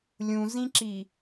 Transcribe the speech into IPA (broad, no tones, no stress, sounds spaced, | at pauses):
lʲ ũ z ĩ ǁ i